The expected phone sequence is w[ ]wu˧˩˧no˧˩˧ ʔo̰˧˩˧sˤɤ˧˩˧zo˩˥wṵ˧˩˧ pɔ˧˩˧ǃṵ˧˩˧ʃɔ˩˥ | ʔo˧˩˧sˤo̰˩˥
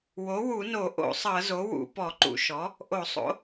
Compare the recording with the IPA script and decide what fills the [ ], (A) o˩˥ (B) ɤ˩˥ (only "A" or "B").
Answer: A